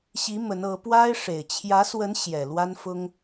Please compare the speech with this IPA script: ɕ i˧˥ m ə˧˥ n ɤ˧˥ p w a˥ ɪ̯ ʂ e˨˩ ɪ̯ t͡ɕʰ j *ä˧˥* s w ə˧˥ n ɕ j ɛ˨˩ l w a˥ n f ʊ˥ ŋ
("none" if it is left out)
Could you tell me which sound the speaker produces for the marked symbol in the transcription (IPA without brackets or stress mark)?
ä˧˥